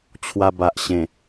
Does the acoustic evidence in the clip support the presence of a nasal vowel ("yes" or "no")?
yes